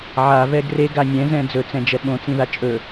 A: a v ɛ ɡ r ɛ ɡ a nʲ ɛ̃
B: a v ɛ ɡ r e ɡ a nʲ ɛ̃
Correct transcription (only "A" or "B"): B